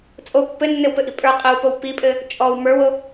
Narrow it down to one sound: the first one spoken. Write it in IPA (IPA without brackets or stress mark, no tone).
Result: t͡sʼ